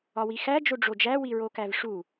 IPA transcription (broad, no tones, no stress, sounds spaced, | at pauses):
ɒ w i x æ d͡ʒ o ɖ͡ʐ o d͡ʒ æ w i ɹ o k æ v ʂ u